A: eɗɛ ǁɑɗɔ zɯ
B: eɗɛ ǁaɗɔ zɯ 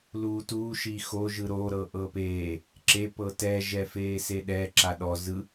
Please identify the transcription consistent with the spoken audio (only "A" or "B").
B